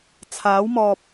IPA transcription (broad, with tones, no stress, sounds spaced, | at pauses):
t͡sʰ aː˨˥ w m ɔː˨ p̚